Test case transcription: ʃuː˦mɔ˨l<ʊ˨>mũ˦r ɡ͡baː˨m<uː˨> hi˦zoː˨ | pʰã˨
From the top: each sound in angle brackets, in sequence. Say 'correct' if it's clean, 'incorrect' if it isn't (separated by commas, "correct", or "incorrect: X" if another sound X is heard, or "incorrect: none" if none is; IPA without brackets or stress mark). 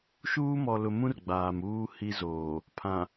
correct, incorrect: uː˦